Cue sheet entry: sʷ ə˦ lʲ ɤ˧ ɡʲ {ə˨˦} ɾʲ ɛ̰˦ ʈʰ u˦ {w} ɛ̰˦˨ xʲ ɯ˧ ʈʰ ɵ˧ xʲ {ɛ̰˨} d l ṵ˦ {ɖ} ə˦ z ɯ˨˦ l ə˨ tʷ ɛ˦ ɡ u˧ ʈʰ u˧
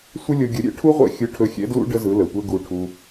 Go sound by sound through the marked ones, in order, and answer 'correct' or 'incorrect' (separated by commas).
correct, incorrect, incorrect, correct